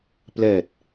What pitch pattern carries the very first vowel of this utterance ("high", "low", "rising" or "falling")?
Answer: low